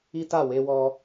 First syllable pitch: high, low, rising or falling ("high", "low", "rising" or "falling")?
high